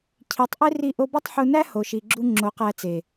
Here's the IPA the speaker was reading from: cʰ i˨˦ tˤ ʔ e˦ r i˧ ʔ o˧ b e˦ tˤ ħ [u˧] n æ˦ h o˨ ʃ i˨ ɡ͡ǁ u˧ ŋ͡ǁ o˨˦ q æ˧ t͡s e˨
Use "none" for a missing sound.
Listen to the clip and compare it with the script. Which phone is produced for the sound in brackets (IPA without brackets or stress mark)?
u˧